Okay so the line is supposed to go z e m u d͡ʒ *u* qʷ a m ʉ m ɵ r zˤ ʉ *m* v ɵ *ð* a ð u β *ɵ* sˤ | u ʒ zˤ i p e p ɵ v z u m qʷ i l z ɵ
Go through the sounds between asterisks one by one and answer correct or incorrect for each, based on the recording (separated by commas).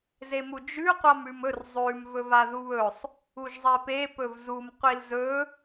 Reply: incorrect, correct, incorrect, correct